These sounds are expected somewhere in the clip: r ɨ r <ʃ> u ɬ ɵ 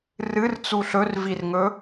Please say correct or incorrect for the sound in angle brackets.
incorrect